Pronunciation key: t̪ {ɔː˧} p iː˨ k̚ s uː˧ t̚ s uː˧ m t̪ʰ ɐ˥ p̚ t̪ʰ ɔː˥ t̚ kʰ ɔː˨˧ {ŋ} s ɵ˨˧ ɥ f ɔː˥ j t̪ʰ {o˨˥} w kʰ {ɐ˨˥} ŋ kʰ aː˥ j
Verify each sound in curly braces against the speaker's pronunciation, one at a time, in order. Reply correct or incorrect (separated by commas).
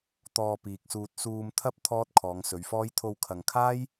correct, correct, incorrect, incorrect